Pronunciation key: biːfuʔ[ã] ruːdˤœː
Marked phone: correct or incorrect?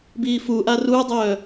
incorrect